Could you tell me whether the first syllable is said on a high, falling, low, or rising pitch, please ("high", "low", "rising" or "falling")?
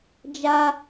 high